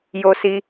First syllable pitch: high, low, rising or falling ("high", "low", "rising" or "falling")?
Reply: high